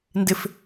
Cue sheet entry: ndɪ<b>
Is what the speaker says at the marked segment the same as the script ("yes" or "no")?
no